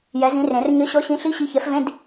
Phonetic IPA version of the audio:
j ɛ˨˥ z ĩ˨˥ r ẽ˨˩˦ r ɲ ə˨˥ ɕ ɔ˨˥ ɕ ĩ˨˥ ɬ i˧˥˧ ɕ i˨˥ ç ɛ˨˥ f v ẽ˧˥˧ d

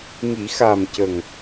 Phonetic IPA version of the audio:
ŋ i˨˩˦ x a˨˩ m c ə˨˩ ŋ

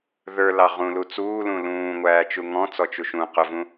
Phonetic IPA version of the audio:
ð ə˞ l ɑ ʁ ũ l u t͡s uː l ũ l ũː ŋʷ æː t͡ʃ u ŋ ɔ̃ t͡s ɔ t͡ʃ u ʃ ũ q ʊ v ũ

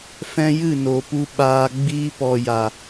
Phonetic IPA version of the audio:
f ɛ̃˧ j ɨ˦˨ n oː˨ p u˧ ɓ aː˧ ɡ͡b iː˧ p ɔ˨ j a˨

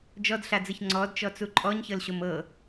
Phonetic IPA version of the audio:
d͡ʒ ɔ d ɬ a d͡z ɯ ç ŋ͡ǀ ɔ d t͡ʃ ɔ t͡s u ǃʼ ɔ ɲ ç ɤ l ɕ o m ɤ

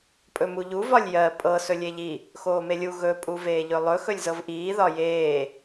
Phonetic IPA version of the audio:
pʼ ɵ m u ʎ u v ɒ lʲ j ɜ pʼ ɤ s ɵ lʲ e ʎ i | x oː m e lʲ u ɣ ɵ pʼ u v eː ʎ ɵ lˠ ɵ x ɵ lʲ z ɤ v ʔ iː ð ɒ j eː

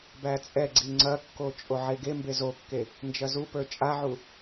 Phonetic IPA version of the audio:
b æ t͡sʼ ɛ ɡ͡ǀ i ŋ͡ǀ ɐ kː o t͡ʃʼ o ʕ e ɡ e m b e z o kː e | n d͡ʒ ɐ z u p ə˞ t͡ʃʼ a ʕ u

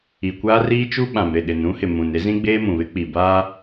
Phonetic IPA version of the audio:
i˨ kʷ aː˦ r iː˦ t͡ʃ u˦ ɓ ã˨ m ɾ ɪ˦˨ ɗ ɪ˨ n ũ˦ h ɪ˨ m ũ˨ n e˦ z ĩ˦ ɡ͡b eː˦ m ũ˨ β ɪ˦ k͡p i˨ b aː˦

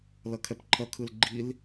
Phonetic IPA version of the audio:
l ʌ kʰ ɛ p ǃʰ ʌ kʰ ɯ l ɡ͡ǃ i l

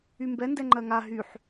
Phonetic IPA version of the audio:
y m b ɛ n d ɛ ŋ͡ǃ ɜ ŋ a ɦ y ħ

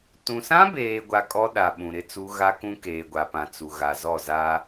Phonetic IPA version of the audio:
t ũ˨ s ã˦ b eː˨ ɡʷ a˨ kʼ ɔ˦ ɗ a˨ ɓ ũ˨ ɾ ɪ˦ t͡s u˦ ɣ a˦ k ũ˦ k eː˨ ɡʷ a˨ p ã˨ t͡s u˨ ɣ a˨ z ɔ˦˨ z a˦

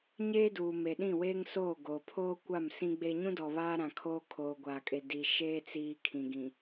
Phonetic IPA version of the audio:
ɲ eː˦ d uː˨ m e˨ ɗ ĩ˦˨ w eː˦ ŋ s oː˦˨ ɡ oː˨ pʰ oː˦ kʷ a˦˨ m s ĩ˦ ɡ͡b e˦ ɲ ũ˦ d ɔ˨ β aː˦ ɾ ã˨ kʰ oː˦ kʰ oː˨ ɡʷ aː˨ kʼ e˨ d i˨ ʃ eː˦ t͡s iː˨ kʰ ĩ˨ ɡ ĩ˨

